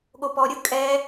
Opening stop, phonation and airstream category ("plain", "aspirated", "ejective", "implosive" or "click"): implosive